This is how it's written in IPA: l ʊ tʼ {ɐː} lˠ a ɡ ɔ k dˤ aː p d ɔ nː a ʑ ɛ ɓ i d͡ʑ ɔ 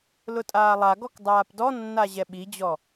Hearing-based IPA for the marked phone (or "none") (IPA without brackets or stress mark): aː